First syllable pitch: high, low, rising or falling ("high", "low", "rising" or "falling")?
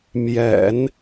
low